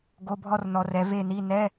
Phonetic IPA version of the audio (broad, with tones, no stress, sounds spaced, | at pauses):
ɡ o˧˥˧ bʱ ɔ˥˧ r n ɔ˨˦ r ɛ˨˦ v e˥˧ n i˧˥˧ n ɛ˧˥˧